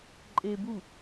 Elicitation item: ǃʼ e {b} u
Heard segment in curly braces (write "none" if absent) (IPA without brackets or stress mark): b